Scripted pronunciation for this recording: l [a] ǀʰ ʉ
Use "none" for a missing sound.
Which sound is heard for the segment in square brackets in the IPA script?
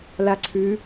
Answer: a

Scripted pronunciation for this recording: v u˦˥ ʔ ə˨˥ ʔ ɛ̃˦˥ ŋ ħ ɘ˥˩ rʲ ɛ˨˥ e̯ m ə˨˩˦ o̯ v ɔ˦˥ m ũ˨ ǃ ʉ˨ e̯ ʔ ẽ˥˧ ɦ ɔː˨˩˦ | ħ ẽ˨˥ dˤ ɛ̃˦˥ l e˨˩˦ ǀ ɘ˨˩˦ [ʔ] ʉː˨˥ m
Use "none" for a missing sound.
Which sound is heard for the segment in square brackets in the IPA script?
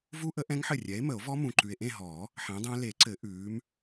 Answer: ʔ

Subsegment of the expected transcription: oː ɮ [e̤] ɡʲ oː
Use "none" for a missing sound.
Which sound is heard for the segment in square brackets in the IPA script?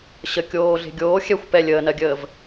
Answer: e̤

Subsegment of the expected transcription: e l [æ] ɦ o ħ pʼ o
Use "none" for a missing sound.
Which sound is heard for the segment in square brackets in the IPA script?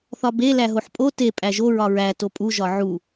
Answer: æ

